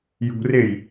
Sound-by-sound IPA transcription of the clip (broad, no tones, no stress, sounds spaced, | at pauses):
j ṳ r e j